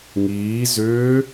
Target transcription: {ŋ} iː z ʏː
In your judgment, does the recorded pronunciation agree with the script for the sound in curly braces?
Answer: yes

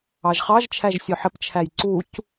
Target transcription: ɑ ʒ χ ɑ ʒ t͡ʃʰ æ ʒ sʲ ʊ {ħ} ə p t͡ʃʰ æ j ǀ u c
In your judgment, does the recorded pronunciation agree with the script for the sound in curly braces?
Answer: yes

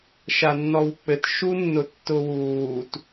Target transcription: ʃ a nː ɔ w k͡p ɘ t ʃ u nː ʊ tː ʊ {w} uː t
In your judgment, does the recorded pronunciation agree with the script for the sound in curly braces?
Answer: yes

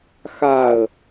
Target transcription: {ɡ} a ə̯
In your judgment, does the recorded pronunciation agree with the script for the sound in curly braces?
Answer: no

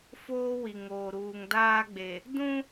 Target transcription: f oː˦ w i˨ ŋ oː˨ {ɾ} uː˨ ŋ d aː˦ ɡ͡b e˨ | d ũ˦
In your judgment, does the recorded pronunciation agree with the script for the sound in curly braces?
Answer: yes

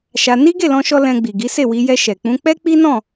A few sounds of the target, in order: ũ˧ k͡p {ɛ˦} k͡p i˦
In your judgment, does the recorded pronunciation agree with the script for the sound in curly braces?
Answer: yes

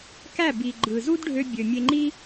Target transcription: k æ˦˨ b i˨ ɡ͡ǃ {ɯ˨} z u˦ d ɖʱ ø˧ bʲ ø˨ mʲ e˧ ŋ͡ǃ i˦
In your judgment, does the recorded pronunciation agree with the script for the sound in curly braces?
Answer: yes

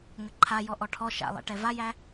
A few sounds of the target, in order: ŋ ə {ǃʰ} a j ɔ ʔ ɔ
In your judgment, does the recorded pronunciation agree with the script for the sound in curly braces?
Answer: yes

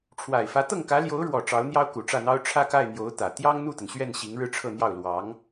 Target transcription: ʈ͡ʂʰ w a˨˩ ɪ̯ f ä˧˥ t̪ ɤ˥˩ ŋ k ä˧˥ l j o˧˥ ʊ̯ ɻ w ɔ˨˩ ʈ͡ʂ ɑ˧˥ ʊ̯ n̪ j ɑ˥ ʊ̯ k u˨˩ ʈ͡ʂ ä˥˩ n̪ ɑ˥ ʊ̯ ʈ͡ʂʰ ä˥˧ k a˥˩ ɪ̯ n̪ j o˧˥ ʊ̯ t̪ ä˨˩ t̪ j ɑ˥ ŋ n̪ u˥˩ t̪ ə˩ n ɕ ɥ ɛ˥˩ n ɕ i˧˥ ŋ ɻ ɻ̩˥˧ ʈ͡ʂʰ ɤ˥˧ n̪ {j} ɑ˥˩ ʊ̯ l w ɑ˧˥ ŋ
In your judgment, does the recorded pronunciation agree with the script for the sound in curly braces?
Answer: yes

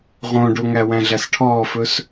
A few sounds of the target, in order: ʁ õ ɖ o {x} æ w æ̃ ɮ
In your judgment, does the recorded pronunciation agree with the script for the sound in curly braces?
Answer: no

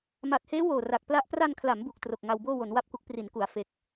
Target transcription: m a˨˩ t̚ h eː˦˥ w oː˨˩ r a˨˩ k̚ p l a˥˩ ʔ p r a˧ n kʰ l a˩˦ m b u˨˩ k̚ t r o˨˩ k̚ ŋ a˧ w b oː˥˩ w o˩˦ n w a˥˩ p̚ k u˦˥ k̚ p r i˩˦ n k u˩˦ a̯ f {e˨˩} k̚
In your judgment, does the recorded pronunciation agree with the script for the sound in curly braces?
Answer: no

